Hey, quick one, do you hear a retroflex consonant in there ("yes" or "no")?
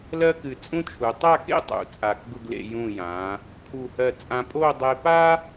no